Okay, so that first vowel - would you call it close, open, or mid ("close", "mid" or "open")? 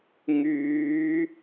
close